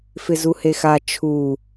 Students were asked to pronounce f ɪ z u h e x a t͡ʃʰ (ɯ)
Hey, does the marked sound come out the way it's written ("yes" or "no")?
no